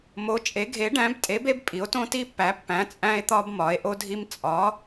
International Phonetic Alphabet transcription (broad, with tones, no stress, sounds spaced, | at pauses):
m o˨˦ t͡ʃʼ e˨˦ ɡʱ e˨˦ ɖ æ̃˨˦ b tʼ e˨˦ b e˦ b pʼ i˨˦ o̯ t õ˦ t i˦ pː æ˨˦ pː æ̃˨˦ t͡sʼ æ̃˦ e̯ t̪ ɒ˦ b m ɒ˨˦ e̯ ʔ o˦ dʱ i˦ m t͡sʼ ɒ˨˦